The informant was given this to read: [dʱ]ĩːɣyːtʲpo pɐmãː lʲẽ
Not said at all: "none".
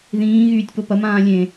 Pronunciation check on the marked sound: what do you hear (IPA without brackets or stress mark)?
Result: ð